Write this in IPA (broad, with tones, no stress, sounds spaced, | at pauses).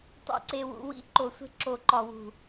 tˤ ṵ˧ ǀ e˧ w ṵ˧ w ḭ˦ ǃ o˨ sʷ e̤˧ ǁ o˨ ǃ ɒ˨ w ṳ˨